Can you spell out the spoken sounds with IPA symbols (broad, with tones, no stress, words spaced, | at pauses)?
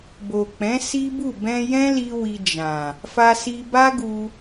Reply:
bo˨k͡pɛ̃˨˦ si˦bu˦˨ bɛ̃˧jɛ̃˦li˧ wi˧d͡ʒã˨ | fa˧si˧ba˦ ɡu˧